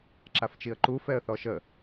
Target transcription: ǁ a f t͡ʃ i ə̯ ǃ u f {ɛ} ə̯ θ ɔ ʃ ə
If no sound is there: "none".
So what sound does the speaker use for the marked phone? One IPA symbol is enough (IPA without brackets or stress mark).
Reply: ɛ